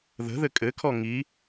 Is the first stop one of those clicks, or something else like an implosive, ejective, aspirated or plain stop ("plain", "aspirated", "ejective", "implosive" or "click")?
ejective